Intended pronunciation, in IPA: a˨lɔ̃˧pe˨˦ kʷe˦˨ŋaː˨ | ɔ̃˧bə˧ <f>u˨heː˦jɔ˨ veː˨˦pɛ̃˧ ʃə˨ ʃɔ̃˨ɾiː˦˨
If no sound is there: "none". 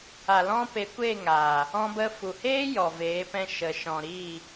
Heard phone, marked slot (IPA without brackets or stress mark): f